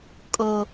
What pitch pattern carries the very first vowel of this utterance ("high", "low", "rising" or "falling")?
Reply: low